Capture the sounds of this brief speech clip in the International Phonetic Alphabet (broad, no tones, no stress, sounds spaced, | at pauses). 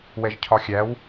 w ɛ ʒ cʰ ɒ xʲ æ w